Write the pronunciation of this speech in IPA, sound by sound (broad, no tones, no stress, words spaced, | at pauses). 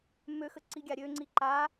møxə ǀi ɡʲaɾʲøŋ͡ǀi ǃa